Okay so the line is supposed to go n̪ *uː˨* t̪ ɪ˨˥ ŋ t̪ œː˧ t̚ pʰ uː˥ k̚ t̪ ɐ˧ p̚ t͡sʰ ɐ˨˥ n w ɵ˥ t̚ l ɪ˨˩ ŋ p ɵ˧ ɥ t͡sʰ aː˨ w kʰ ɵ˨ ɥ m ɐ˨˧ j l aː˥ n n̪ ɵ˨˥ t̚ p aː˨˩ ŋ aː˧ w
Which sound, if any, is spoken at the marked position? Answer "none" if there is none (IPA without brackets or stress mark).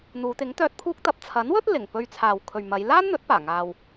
uː˨˧